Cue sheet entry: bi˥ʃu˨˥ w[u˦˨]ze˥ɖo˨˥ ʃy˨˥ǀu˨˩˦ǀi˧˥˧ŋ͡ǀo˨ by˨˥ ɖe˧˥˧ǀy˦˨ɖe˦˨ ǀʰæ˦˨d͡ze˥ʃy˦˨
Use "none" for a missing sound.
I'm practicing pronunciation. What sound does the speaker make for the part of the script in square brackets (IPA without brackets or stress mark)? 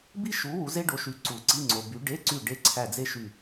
u˨˥